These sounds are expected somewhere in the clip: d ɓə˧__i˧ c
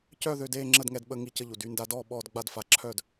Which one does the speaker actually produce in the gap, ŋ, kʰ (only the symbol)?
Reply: ŋ